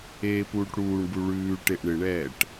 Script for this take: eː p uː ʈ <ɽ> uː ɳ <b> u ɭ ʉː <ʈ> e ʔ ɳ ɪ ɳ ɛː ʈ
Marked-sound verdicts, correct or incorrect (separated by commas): correct, correct, correct